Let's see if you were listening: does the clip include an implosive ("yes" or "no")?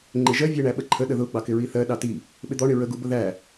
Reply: yes